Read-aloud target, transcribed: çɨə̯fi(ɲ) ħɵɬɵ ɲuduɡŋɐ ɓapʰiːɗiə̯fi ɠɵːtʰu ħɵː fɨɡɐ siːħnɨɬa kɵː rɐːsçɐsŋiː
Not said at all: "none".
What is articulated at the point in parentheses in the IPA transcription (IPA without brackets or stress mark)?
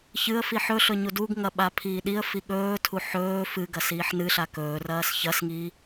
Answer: none